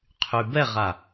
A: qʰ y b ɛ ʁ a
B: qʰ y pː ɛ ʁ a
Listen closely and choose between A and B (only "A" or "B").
A